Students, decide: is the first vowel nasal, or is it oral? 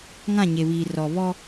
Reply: nasal